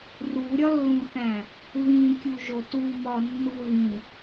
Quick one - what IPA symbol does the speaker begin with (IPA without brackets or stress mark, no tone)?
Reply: r